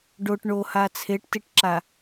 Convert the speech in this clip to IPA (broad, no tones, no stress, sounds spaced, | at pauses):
ɖ o ʈ ɳ o h a t͡sʰ e ʈ t i ʈ ǁ a